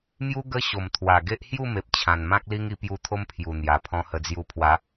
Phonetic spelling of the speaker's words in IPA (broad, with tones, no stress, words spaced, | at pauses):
mju˦ ɡə˦ɕo˨˩m t̪ʰwa˨˩ɡe˦ʔ hju˥˧me˨p̚ t͡ɕʰã˨˩nmã˦k̚li˦ŋ i˧pju˧t̪ʰo˦m pʰju˨˩n̪ja˨˩pʰɔ̃˧ hə˧d͡zju˧pʰwa˨˦